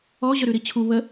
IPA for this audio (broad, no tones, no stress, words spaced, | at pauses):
ɔ ʑœɾʉɾit͡ɕʰu βə